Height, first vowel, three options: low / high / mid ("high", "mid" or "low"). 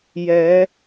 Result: mid